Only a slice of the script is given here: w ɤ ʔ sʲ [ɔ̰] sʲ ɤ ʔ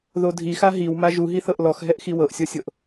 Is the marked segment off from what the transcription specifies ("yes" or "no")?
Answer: yes